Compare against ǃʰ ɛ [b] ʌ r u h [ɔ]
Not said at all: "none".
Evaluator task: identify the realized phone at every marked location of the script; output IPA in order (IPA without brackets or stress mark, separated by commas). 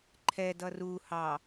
d, ɑ